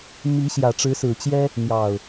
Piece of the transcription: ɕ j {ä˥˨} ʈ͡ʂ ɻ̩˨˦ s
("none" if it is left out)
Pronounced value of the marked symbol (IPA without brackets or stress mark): ä˨˩